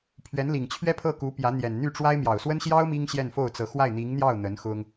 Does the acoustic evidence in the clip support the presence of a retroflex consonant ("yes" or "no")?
yes